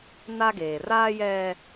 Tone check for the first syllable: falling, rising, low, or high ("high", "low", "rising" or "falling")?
high